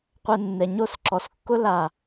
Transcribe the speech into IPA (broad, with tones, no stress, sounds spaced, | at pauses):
qʷ ɛ˥ nː ɛ˧ ɲ o˥˧ s ǁ ɔ˧ s kː ʊ˥ l a˥˧